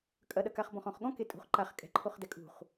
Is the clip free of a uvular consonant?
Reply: no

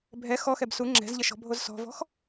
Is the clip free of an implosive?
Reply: yes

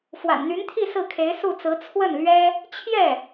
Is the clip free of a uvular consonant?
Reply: yes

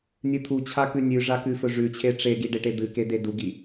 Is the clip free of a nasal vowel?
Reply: yes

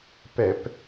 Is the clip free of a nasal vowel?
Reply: yes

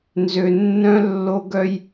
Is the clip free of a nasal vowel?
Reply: no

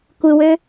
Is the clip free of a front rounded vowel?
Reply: no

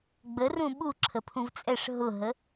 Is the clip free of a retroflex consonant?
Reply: no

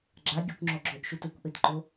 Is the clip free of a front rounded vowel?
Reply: yes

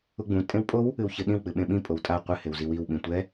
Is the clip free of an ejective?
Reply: no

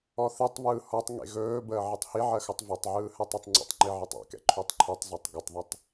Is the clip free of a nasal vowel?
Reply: yes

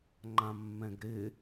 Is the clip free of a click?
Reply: no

